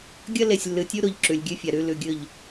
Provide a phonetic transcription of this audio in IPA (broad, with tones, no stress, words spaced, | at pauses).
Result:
ɡʲɐ˦le˨sʲlːɨ˨tʲu˦ ɾo˨ʎ ǁʉ˨lʲɡʲʉ˦fʲa˨ ɾʉ˦ lʉ˨ɡʲɵ˦˨ʎ